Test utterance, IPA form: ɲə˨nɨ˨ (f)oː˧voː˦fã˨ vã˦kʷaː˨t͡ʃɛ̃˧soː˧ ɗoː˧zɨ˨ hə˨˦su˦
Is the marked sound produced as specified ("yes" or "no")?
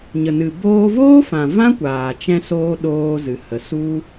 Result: no